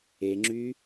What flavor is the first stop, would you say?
click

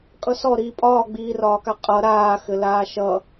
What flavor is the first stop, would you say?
ejective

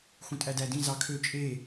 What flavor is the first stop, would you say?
ejective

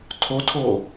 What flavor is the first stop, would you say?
aspirated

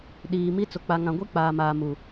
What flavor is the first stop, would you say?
implosive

